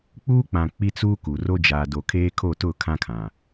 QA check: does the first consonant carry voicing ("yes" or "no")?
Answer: no